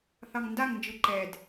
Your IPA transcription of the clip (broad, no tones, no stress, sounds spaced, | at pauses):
θ ɑ ŋ n d a ŋ n d͡ʒ ɯ ǃ ɛ d